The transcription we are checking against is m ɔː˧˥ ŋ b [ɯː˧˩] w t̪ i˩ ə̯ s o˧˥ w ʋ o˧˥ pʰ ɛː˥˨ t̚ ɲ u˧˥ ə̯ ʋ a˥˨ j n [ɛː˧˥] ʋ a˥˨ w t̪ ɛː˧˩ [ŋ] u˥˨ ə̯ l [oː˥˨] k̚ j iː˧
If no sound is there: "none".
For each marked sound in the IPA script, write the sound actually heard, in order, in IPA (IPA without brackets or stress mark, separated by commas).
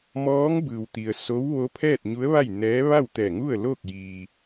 ɯː˩, ɛː˧˥, ŋ, oː˥˨